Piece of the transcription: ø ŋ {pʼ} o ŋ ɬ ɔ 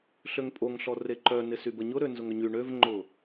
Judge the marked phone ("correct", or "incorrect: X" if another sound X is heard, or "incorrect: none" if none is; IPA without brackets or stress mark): correct